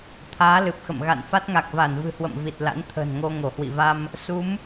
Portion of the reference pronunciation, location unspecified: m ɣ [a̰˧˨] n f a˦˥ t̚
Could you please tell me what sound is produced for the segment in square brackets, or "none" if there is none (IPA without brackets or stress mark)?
a̰˧˨